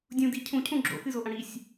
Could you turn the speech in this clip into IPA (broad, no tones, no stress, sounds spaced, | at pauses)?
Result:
dʲ ũ d i cʰ ũ cʰ ũ ɡ͡ǁ o̰ x ɨ z o ʔ ɐ̃ ɽ i sʲ